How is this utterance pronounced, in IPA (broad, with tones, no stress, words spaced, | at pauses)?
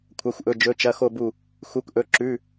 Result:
kʷʰɐ˧˥˧xʷʔɵ˧˥˧d͡ʒɵ˧˥˧t͡ʃɐ˧˥˧ xo˥˧bu˥˧ | xu˧˥˧kʔɵ˧˥˧ ǁʉ˧˥˧